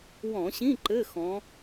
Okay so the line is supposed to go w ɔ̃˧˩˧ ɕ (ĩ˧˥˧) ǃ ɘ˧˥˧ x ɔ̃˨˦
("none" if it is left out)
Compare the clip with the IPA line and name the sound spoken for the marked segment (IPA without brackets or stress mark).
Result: ĩ˧˥˧